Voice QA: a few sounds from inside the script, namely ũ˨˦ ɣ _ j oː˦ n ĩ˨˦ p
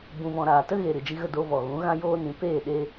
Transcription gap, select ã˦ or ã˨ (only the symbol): ã˦